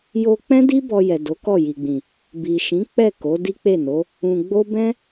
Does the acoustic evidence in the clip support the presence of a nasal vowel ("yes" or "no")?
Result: yes